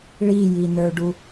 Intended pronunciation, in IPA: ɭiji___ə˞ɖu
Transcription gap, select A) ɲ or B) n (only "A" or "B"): B